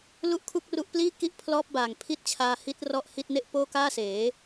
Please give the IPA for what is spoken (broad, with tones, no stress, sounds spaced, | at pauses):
l u˥˩ ʔ kʰ u˥˩ k̚ r u˦˥ ʔ p l iː˥˩ k i˥˩ ʔ pʰ l ɔː˦˥ p̚ b aː˨˩ ŋ pʰ i˦˥ t̚ t͡ɕʰ aː˧ h i˦˥ t̚ r ɔ˥˩ ʔ h i˥˩ t̚ n e˥˩ ʔ p oː˥˩ k aː˥˩ s eː˩˦